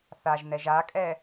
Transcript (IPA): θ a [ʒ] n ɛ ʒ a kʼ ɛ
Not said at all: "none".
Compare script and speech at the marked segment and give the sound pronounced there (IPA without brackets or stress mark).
ʒ